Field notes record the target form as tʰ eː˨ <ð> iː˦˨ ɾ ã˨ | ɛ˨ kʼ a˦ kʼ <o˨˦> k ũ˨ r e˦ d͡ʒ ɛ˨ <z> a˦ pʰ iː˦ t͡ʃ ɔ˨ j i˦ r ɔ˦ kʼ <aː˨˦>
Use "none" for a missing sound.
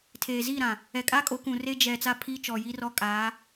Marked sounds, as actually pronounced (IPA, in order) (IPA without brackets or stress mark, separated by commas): z, o˨˦, t͡s, aː˨˦